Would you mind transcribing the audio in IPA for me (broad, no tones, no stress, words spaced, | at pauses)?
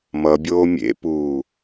mʌbʲoː mʲḛpuː